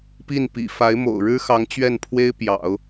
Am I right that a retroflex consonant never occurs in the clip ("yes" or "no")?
no